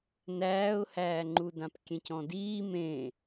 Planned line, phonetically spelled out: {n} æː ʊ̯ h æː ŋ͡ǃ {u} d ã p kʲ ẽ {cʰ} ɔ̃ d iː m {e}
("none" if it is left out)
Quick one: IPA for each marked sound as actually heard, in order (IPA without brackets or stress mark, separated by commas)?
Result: n, u, c, ẽ